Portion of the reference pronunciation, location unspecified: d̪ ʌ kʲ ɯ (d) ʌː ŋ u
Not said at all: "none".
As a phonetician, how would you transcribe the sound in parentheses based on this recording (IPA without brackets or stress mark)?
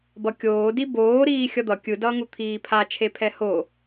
d